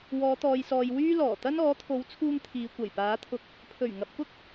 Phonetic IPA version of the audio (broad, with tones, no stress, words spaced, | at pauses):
wɔː˨˧t̪ɔː˨jsɔː˨j wyː˥lɔː˨˩ t̪ɐ˥n ɔː˨˥t̪ʰo˨˥wt͡sʰuː˧ŋ t̪ʰiː˨˧kʷɐ˨˩jpaː˨˥t̪ʰʊ˧k̚ | pʰɵ˨˩ɥŋɐ˨p̚ kʊ˥k̚